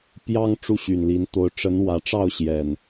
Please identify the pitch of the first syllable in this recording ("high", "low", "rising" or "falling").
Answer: high